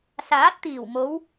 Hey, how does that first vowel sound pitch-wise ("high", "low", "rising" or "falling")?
rising